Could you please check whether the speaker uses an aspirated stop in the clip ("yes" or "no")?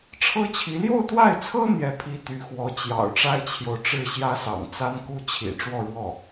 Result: yes